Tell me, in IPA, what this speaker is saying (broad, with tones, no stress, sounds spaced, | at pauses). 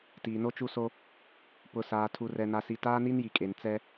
t iː˨ n o˦ t͡ʃ u˦ s o˦ | p ʊ˨ s aː˨ tʰ u˨ r ɛ˨ n a˨ s i˨ t aː˦ n i˦ n j i˨ kʼ e˨ n t͡s ɛ˦